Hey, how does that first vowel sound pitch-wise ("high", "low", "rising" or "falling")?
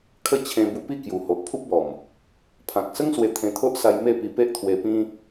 falling